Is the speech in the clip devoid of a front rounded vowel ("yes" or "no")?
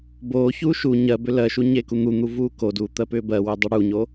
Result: no